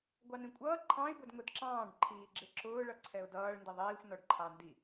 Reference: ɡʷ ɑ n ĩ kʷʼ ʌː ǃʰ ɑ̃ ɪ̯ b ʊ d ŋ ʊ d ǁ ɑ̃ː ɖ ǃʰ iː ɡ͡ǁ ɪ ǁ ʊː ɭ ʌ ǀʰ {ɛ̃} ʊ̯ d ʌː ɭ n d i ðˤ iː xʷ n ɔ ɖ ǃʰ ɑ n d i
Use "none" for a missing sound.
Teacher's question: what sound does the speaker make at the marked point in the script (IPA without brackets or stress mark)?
ɛ